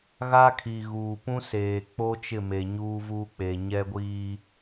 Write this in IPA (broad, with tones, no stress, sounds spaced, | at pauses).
ɣ a˦ kʰ i˨ ɣ uː˨ p ũ˦ s eː˨ k͡p o˦ t͡ʃ ɪ˦˨ m e˨ ɲ uː˦ v uː˦ k͡p e˨ ɲ ɛ˦ ɡʷ iː˦